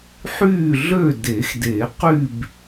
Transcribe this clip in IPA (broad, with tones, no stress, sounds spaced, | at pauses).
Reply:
ħ yː˥˨ ɮ ø˥˨ d e˨˩˦ x d e˨˩˦ q y˥˨ b